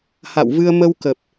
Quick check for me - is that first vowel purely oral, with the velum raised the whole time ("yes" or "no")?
yes